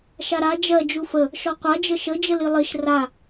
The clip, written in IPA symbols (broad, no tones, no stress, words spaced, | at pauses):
ʃaɾa d͡ʒɜ d͡ʒufə | ʃɔqʷa d͡ʒəʃə d͡ʒəlilˠiʃ ra